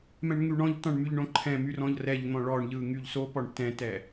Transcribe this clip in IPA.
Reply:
mɛ̃ɳŋyɳɔ̃ʎtɔ̃ɳ myʎɳõǃʰɛ̃my rɔ̃ʎrɛʎn̪ɔ̃ ɭɔɳʎɯ ŋyʎsopɔɳ tɛ̃tɛ

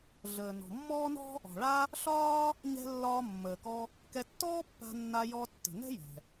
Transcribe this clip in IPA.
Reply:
ɮəː˩ nɔ̤˩mːɔː˥nɔ̤˥ | ɔ̤˩ɭa˥ | ɬɒː˥ | ɲɛ̤˧ lːɒː˧ mːəː˩kɔ˧ | kɛ˧tːɔː˥pːa̤˧ nːa˧jɔ˧ tːə̤˩nɛ̤˥ jɛ̤˩

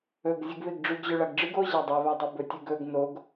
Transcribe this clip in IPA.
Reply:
ɵɡ zʲɨɡβeɡɖ͡ʐʉɡʑɵ ɭaɡɖ͡ʐɨɡ o ʑadˤeβadˤe bɵtʲʉɡɵɡ noɡ

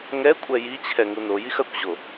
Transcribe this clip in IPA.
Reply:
ŋɛ kʷʼɛjit͡ɕʰɛ ŋunojix ɐkʷʑo

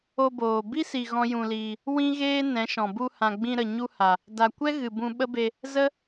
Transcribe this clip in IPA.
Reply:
o˧boː˨ bi˦si˨ ɣɔ̃˦jũ˧liː˧ | wĩ˦ɣeː˦ nɛ̃˨˦ʃɔ̃˨ bu˧hã˨ɡ͡bĩ˧ɾə˨ ɲu˧ha˨ | da˨kʷɛ˦ ɣɨ˨ bũ˧ ɓə˦be˧ | zə˦

